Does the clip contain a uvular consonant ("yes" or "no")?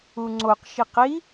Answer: yes